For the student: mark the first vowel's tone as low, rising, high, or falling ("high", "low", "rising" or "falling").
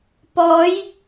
rising